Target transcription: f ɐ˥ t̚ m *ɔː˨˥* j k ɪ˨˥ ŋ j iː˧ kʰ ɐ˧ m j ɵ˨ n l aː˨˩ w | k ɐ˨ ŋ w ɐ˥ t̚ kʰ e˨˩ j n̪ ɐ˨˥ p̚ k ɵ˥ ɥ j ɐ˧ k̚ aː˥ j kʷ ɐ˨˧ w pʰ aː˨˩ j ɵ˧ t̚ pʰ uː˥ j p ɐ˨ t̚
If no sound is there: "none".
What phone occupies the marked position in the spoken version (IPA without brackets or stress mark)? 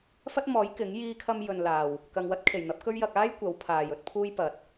ɔː˨˥